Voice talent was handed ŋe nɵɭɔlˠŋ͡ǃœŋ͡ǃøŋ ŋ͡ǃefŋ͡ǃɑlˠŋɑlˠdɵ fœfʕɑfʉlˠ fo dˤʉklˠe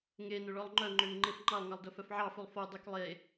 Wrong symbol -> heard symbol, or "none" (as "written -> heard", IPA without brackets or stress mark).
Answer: none